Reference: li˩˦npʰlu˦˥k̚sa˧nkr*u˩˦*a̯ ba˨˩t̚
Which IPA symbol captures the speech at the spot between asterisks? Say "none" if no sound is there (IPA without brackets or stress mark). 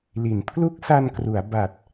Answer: u˩˦